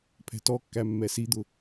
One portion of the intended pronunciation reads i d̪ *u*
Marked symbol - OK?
no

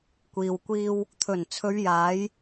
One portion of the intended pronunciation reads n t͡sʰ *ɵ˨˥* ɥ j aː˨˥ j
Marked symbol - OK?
no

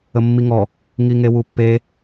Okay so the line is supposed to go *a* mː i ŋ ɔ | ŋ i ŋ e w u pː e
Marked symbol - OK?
no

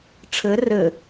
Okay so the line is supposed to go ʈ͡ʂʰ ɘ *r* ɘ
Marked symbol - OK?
yes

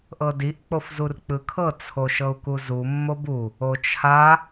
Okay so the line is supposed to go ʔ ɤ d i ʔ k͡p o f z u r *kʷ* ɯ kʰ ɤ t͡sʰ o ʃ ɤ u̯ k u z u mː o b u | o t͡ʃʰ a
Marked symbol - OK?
no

